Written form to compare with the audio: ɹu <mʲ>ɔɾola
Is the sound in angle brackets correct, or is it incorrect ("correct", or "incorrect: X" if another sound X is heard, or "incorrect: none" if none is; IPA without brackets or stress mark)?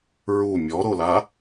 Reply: correct